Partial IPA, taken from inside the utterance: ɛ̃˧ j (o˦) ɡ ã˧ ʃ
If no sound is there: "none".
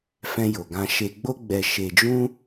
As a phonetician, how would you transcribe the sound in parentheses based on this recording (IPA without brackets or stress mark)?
o˨